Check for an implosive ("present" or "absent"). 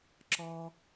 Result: absent